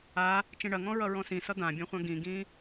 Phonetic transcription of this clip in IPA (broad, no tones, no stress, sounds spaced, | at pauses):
a | t͡ʃ ĩ ɳ ɐ ŋ ɔ̃ ɹ ʌ ɹ ɔ̃ s ĩ s ʌ d̪ ã bʲ ɔ̃ χʷ ã ɡ ĩ ɡ ĩ